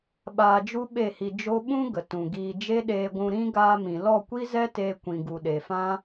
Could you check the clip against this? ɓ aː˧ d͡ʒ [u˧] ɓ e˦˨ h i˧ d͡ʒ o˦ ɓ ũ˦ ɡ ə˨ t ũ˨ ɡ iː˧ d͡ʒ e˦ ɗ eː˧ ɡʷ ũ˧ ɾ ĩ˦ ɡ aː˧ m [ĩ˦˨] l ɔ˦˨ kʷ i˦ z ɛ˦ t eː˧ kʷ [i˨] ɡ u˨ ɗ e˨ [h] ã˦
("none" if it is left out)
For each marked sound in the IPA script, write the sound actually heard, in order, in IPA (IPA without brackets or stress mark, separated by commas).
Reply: u˦, ĩ˨, ĩ˨, f